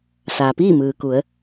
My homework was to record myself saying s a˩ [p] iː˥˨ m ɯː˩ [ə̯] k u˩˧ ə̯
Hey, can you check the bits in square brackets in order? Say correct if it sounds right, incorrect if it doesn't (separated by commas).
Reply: correct, incorrect